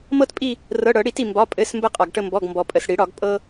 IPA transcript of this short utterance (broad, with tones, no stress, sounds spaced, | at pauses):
m ɤ˦ t pʼ i˦˨ | r ɤ˩˧˩ ɽ ɤ˧˩˧ ɽ i˧˩˧ t i˩ m b ɒ˩˧˩ pʼ ɘ˩˧˩ s m b ə˦˨ qʼ ɒ˩ ɡ ʈ ə˦˨ m b ɔ˩˧˩ ɡ m b ɔ˩ pʼ ə˩ s ɽ i˧˩˧ ɽ ɒ˧˩˧ ɡ pʼ ɤ˦